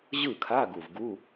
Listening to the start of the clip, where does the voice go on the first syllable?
falling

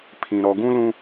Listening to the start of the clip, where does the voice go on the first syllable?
low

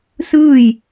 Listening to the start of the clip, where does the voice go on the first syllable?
falling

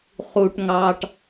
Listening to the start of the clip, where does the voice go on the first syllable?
low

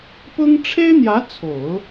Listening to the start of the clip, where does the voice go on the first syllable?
high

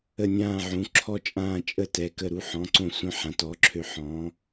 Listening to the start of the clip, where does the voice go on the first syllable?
falling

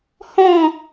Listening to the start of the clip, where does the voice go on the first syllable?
falling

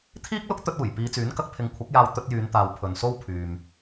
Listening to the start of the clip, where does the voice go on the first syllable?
high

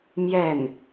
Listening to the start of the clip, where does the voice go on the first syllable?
falling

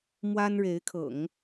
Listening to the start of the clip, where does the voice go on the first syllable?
high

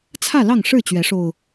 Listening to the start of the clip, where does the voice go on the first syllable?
falling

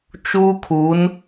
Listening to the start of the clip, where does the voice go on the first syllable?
high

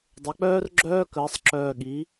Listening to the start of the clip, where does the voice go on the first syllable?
rising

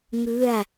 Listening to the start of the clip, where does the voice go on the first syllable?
falling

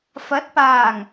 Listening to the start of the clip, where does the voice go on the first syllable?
rising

